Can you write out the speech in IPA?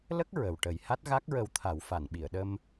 lə˦˥k̚ ɹə˨˩wʈə˨˩˦j ha˦˥t̚ɣa˦˥k̚ɹə˧wt̪ʰa˨˩˦w fa˨˩˨nɓi˨˩˨ə̯ɗə˧m

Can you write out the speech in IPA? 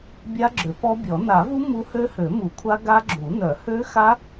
bʲa˦˥ɡ͡ǁø˨˩˦pɔ˦˥bʲɔ˨˩˦ na˨˩˦vu˦˥ mu˦˥ hø˦˥hø˨˩˦mu˨˩˦kʷʰa˦˥ ɡa˦˥ɡ͡ǁu˨˩˦ nœ˨˩˦hø˦˥xa˦˥

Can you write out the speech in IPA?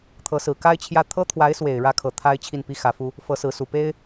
t̪ʰɤ˧˥sɹ̩˨˩ ka˥ɪ̯ t͡ɕʰjä˥˩ t̪ʰɤ˥t̪ʰwa˧˥ɪ̯swe˨˩ɪ̯ ɻä˥kʰɤ˨˩ t̪ʰa˥ɪ̯ t͡ɕʰi˥˩npi˥xä˧˥fu˥ | fɤ˧˥ sɹ̩˧˥su˨˩pe˥ɪ̯

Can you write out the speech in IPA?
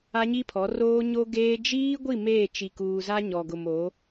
a˦ɲi˦pʰɔ˨˦ roː˦ ɲo˦ɡeː˦ d͡ʒiː˦ɡʷi˦˨ meː˦˨t͡ʃi˨kuː˨za˦ ɲɔ˨ɡʊ˨m o˨˦

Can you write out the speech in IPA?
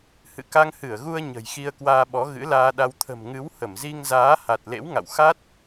hɨ̰˧˨ka˧ŋhɨ˧˩ə̯ɣu˧ə̯ ɲə̤˨˩jxi˧ə̯kwaː˧ɓɔ˨˦ ɣɨ̰˧˥laː˧ɗa˧w t̪ʰə̤˨˩mŋɨ˨˦w hə˧˩mzi˧ŋzaː˨˦ ha˨˩t̚ lḛ˧˥wŋa̰˧˨w xa˦˥t̚

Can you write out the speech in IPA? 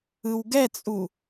ɯwɡɛt͡sʼu

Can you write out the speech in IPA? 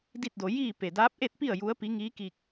di˥˨t̚do˧ jiː˥˨ pe˧˩daː˧˥p̚ʔe˥˨t̚pi˥˨ə̯ ju˧˥ə̯pi˧˥ ŋiː˧˥ki˧k̚

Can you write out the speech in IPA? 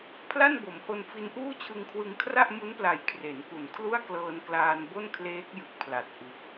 pʰla˥˩nbo˩˦mho˧n fi˧nʔuː˥˩t͡ɕʰɯ˧ŋkʰwɯ˧ŋ kʰra˥˩ʔmu˦˥npla˨˩j kʰre˩˦nku˨˩n kʰlu˥˩a̯klɤː˧nklaː˧nbo˥˩n kʰleː˦˥k̚ jɯ˨˩k̚pʰla˨˩t̚ ʔɯ˨˩k̚

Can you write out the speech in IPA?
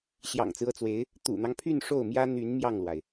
ɕjɑ̰˨˩ŋt͡sɹ̩˦ɤ˥˩t͡swe˧˥ɪ̯ | t̪ṵ˨˩n̪ɑ˦ŋpʰy˥˧n ʂo˥˩ʊ̯mjä˥ n̪y˧˥n mjɑ˥˩ŋlwa˩ɪ̯

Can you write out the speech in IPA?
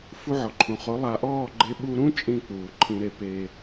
fu˧ʕɔ˨ǃʰũ˨χo˨˦ lˠa˨ʔɔː˦˨ɡ͡ǃe˧ ɓu˧ɾũ˦ t͡ʃʼĩ˦˨k͡puː˨ ǃʰĩ˧ɾe˧ pe˧

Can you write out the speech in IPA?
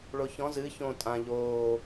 ɭoçɔ̃ zɨ çõ tʼã ʎoː

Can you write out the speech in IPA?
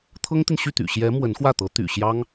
t̪ʰɤ˥ŋt̪i˨nɕy˥˩t̪y̰˨˩ ɕjɛ˧˥ mwə˧˥nxwä˥˩t̪ɤ˧˥ t̪y̰˨˩ɕjɑ˥ŋ

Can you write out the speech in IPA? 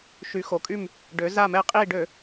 ʃy˩˧xo˩ kʼy˧˩m | ɖø˩˧za˧˩mɛ˧˩ qʼiː˧˩ɖø˧˩˧

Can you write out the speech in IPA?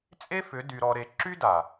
t͡sʼe˦fʏ˨˦ dy˧ɾɔ˧ɾe˧ ǁy˦da˨

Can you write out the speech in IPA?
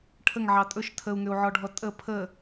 ʈʰəŋʕɑ tʼɵʃ tʰəu̯ŋʏu̯ʕɔɖʱɔ tʼə pʰə

